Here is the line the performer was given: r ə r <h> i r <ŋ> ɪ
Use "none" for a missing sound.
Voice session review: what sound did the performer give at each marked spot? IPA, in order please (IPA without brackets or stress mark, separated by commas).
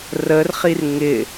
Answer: χ, ŋ